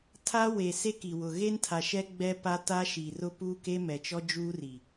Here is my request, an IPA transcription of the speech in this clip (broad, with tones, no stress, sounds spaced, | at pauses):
tʰ a˦ w e˨ s e˦ k i˨ w ʊ˨ ɣ e˦ n tʰ a˨ ʃ ɛ˦ ɡ͡b ɛ˦ p a˦ t a˦ ʃ i˨ r ʊ˦ p uː˦ k e˦ m ɛ˨ t͡ʃ ɔ˦ d͡ʒ uː˦ r i˨